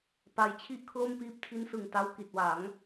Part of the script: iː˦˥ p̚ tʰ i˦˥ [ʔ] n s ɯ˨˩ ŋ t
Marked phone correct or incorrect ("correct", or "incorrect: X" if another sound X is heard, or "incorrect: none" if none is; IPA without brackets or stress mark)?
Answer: incorrect: none